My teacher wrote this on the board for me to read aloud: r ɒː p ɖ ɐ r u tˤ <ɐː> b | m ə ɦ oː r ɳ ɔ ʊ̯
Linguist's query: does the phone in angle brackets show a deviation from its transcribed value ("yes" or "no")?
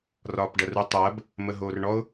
no